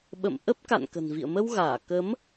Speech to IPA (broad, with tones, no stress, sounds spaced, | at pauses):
ɓ ə̰˧˨ m ʔ ə˦˥ p̚ k a̰˧˨ n k ə̤˨˩ n v ḭ˧˨ ə̯ m ə˧ w ɣ aː˧˩ k ə˨˦ m